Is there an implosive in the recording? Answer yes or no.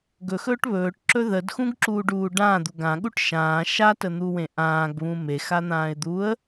yes